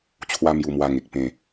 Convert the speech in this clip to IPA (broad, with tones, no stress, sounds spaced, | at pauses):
t͡ɕʰ w a˦ m j u˧ m w a˧ ŋ e˨ k̚ p ẽ˨˩